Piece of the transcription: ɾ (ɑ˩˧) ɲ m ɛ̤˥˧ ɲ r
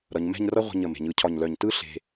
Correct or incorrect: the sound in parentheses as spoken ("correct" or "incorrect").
incorrect